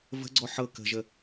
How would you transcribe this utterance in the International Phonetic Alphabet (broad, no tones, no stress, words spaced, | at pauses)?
və̤ɡ͡ǀɔ ħɤ kə̤ʒə